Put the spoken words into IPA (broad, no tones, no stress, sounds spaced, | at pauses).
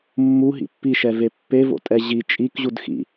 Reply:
mː u ɦ ḭ pː i ʃ ɛ v e pː e v o̰ tʼ ɛ ʑ i t͡ʃʼ i k ʑ u d x ḭ